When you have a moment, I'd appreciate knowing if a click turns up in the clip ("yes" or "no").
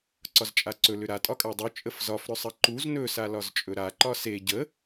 yes